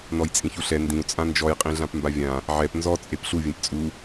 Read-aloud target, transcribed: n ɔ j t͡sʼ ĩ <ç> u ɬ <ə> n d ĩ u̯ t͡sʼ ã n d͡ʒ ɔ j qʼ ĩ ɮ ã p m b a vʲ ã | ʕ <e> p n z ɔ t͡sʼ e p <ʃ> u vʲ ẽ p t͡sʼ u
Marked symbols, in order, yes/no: yes, no, no, no

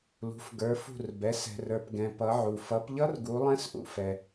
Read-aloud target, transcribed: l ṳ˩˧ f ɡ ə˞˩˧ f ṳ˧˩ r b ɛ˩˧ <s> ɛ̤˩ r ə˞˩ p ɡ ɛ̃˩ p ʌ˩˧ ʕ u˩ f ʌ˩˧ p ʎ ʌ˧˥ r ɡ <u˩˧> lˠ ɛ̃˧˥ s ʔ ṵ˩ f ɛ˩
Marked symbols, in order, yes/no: yes, yes

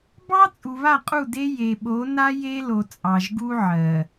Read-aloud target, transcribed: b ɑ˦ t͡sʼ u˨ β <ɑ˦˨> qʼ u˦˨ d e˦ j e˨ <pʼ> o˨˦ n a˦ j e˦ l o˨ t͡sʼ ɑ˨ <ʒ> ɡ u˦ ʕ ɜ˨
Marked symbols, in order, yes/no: no, no, yes

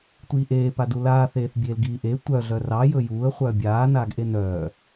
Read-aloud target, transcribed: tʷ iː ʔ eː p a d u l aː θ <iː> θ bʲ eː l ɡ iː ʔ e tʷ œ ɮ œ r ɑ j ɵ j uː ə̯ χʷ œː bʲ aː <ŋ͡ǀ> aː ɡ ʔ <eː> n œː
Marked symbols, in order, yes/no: no, no, no

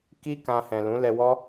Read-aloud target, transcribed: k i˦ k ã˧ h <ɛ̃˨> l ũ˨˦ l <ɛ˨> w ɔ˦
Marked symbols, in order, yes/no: yes, no

